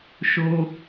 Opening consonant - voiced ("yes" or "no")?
no